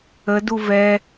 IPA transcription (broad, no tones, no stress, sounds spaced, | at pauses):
ə d u v ɛ